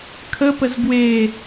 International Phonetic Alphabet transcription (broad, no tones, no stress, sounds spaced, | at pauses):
kʰ ə p ə z ɡ w e